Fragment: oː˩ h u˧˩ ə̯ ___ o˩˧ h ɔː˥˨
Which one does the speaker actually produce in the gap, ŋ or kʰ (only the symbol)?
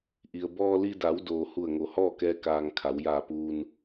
ŋ